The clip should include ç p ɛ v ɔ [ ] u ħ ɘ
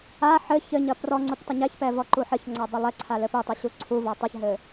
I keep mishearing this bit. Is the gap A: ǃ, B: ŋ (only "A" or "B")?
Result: A